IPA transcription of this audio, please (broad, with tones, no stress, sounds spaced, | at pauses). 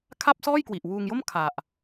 kʰ a˥˩ p̚ s ɔː˥˩ j k w i˨˩ ʔ w uː˧ ŋ j o˥˩ m kʰ a˨˩ ʔ